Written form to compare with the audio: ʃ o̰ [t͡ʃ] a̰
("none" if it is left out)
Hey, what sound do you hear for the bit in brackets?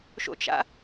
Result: t͡ʃ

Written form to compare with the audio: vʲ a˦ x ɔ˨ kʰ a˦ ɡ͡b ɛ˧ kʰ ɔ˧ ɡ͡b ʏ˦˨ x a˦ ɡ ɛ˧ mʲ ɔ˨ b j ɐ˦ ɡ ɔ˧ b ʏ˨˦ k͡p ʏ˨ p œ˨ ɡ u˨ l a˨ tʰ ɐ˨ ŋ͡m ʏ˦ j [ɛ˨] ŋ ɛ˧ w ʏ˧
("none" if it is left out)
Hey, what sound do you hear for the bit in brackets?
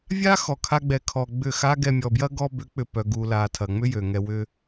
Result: ø˨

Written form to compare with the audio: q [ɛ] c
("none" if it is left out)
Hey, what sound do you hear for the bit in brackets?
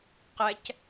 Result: ɛ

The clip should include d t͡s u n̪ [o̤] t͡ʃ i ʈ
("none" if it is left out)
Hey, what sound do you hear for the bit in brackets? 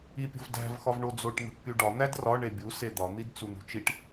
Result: ṳ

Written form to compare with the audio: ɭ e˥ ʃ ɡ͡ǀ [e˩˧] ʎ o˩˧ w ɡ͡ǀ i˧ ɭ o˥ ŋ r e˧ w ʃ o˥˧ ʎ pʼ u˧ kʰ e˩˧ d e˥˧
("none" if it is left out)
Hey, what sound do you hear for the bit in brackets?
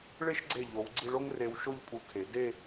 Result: e˧˩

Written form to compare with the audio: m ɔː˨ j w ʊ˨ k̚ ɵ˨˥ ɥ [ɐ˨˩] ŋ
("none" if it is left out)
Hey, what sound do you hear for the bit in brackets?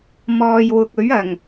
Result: ɐ˨˩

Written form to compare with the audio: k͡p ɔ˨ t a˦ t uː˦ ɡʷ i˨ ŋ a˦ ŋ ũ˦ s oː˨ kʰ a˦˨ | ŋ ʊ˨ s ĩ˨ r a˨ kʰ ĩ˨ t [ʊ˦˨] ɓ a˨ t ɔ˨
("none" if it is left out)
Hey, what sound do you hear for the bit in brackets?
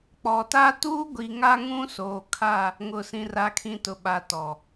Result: ʊ˨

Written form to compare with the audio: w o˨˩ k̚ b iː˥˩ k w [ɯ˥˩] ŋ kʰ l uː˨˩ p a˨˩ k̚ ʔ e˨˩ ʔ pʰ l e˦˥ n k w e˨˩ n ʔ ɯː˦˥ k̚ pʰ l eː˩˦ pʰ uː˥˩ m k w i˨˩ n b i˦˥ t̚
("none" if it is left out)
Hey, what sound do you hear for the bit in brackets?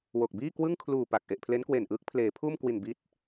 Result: ɯ˥˩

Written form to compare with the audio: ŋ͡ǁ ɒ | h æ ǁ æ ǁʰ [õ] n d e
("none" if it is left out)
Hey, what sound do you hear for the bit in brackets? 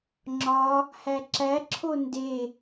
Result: o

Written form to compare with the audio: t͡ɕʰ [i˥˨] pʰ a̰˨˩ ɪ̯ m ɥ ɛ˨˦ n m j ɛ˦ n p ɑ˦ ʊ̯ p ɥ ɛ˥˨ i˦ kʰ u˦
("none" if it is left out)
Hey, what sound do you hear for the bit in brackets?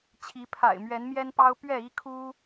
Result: i˨˦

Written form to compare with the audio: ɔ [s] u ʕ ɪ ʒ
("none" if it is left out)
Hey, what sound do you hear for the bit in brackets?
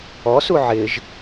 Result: s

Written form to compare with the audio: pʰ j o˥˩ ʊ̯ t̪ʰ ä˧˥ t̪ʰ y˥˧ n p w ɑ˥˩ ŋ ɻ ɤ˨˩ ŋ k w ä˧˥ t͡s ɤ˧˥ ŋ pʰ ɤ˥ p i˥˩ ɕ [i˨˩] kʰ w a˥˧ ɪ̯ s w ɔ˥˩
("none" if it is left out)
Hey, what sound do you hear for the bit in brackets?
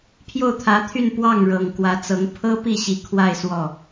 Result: i˨˩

